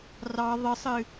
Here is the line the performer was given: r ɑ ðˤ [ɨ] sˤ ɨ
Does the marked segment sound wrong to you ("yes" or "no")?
no